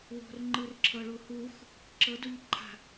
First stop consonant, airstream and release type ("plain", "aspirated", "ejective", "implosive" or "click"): click